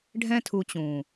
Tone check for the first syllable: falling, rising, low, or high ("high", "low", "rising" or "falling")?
high